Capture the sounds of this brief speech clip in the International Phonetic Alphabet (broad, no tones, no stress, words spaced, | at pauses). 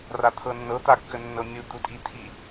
rat̪ʰɤnːɤ t̪akːənːɤmʲu d̪utʼit̪ʰi